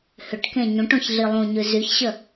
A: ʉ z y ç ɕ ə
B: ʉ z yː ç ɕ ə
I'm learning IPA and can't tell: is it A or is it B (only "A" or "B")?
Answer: A